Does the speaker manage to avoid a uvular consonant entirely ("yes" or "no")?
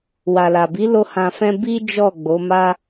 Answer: yes